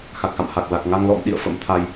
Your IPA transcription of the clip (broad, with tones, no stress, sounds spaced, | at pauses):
x a˨˩ k̚ x a̰˧˨ m h a˨˩ k̚ l a˨˩ k̚ ŋ a˧ ŋ l ɔ̰˧˥ m ɗ ḭ˧˨ ə̯ f ə̰˧˥ m t̪ʰ a˧ j